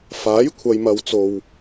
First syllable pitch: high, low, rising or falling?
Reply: rising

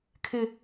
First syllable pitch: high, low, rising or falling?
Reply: high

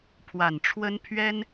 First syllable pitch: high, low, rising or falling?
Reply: low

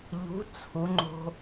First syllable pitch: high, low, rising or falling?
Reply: rising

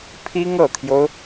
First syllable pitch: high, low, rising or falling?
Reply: high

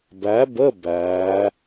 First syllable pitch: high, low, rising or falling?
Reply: rising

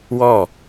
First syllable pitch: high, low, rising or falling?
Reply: falling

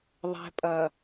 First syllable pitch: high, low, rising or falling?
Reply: low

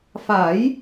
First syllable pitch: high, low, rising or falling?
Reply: rising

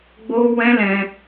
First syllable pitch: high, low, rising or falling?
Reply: high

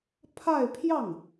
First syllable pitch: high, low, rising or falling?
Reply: falling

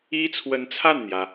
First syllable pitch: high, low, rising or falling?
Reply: high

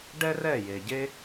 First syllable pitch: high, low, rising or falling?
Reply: high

